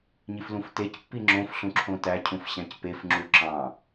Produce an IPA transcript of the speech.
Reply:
ɲiflũftec pːiŋ͡ǁõf ɬũǁʰõtæ cʰũfɕæ̃cpef ŋ͡ǁuǁɑ̃

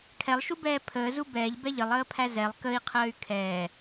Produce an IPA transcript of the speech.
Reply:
kʰɛlˠʃubɛː pʰəːzu bɛːʎbɛ ʎəlˠəːpʰæ zɛlˠ kəi̯qʰəːy̯ kʰɛː

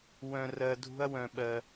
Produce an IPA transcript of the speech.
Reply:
wœ̃˧rɜ˧ dʱṳ˥ɐ̯wœ̃˧ɓɜ˧

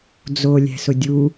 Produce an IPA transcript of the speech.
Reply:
d͡zo lʲɛ̤sʊdʲu

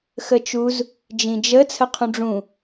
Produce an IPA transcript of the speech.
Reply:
xət͡ʃuz | d͡ʒĩd͡ʒə t͡sʰəqʰũɖ͡ʐũ

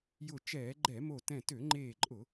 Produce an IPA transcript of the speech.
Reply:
jʊ˧˩ t͡ʃɛː˧˩˧ɡ͡ǃɛ˧˩˧mo˧˩ tɛ̃˧˩tø˧˩˧ŋ͡ǃeː˧˩ǃʼʊ˧˩˧

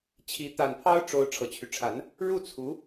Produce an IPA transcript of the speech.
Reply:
t͡ɕʰi˧˥ t̪a˨˩npʰɑ˥ʊ̯ ʈ͡ʂo˧˥ʊ̯ ʈ͡ʂʰɤ˨˩t͡ɕʰy˦ʈ͡ʂʰa˧˥n | ɻu˥˩t͡sʰu˧˥

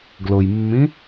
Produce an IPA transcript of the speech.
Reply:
ɡlʊjmːĩ

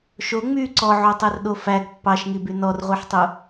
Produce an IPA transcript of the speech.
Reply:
ʃo ŋ͡my ǀɔʕotˤɛrɗo fæɡ pːɑʃŋiby nɔrʁʷiħtˤu

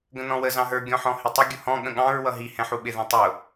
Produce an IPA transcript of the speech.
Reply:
ɡə̃nɔ̃wə zɑ̃ɦə˞ ɡʲɔ̃ħɔ̃hɪtˤɪ ɡʲʊhɔ̃ ɠə̃ɠɑ̃ɹ wʌɦi hɛ̃ħuɓɪ ðɛ̃tˤʊ

